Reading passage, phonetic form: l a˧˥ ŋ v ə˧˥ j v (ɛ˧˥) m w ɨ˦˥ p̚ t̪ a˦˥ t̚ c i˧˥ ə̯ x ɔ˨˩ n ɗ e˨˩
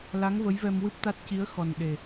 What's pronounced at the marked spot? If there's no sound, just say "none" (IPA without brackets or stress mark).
ɛ˧